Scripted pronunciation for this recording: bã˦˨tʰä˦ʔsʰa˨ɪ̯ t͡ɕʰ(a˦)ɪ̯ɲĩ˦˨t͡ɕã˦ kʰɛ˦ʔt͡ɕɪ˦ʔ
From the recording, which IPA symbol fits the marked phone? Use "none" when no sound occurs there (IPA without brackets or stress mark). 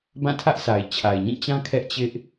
a˨